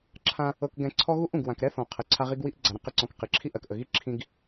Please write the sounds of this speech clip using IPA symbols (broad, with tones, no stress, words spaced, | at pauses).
ǁʰã˦ | ɤ˨kɡɛ̃˨ ǀʰɔ˦ɣu˦ʔũ˨ɡ wã˨kɾɛ˦ θɔ̃˨ qʰə˨ǀʰa˦ʁi˦ɡ wi˦ʔ ɡ͡ǀa˨ɾə̃˦ qə˨ǀɔ̃˨k qi˨ǁʰi˦ʔɜ˨kʔə˨ ɣi˦ǁʰĩ˨ɡ